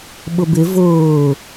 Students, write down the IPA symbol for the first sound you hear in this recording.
ɓ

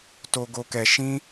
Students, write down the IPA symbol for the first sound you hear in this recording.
t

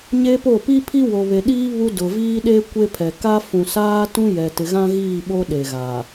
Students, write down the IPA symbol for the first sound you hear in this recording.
ɲ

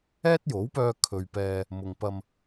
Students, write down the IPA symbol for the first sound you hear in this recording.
ɛː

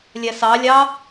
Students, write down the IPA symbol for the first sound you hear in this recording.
lʲ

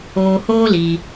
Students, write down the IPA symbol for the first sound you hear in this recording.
oː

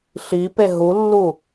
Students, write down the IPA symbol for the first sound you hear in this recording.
ɬ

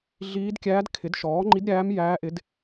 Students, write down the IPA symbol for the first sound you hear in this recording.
ɮ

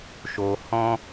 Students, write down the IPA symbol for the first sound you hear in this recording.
ʃ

